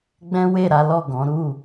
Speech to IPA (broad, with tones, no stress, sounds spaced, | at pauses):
ɡ͡b ɛ̃˦ w e˦˨ ɾ a˨˦ l ɔ˦˨ ɡ ɔ̃˨˦ ɾ u˦˨